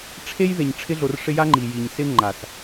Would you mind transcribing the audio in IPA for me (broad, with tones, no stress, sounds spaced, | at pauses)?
ʈ͡ʂʰ e˦ j ð e˨ ɲ ʈ͡ʂʰ ɪ˧ ɮ o˨ r ʂ ɪ˧ j a˦ ŋ͡ǃ i˨ j i˨ ɲ s ɪ˧ ŋ͡ǃ a˨ s